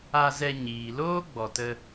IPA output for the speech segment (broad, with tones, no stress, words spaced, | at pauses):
a˧zɛ˧ɲiː˨ loː˦ɡ͡bɔ˨tə˧